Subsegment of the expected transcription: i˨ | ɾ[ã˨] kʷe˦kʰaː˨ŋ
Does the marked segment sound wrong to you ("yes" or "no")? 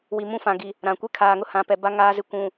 no